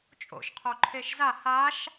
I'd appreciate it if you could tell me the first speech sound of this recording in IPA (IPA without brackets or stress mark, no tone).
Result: t͡ʃʼ